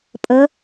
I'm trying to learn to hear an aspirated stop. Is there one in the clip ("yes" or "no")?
no